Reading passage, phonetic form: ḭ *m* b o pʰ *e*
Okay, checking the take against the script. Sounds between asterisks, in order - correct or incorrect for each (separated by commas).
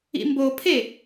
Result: correct, correct